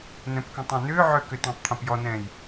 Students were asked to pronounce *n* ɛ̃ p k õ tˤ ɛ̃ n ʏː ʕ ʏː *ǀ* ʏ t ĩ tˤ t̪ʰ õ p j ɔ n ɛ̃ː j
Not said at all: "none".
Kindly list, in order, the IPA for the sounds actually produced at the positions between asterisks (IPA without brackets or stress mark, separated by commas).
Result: n, k